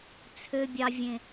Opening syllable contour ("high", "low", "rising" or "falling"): high